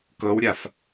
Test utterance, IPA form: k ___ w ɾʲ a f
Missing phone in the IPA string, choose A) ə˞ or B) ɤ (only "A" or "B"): B